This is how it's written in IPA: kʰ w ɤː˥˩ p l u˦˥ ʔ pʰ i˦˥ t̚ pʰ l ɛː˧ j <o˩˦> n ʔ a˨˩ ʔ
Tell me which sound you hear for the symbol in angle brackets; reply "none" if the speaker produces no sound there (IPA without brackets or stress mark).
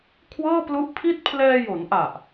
o˩˦